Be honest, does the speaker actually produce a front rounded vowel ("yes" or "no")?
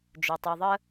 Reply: no